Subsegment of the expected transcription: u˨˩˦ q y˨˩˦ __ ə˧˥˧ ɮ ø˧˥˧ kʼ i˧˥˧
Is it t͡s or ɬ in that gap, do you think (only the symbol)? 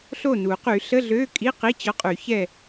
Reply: ɬ